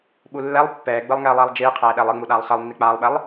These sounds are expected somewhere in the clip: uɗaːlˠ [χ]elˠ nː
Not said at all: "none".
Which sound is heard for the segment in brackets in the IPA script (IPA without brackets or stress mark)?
χ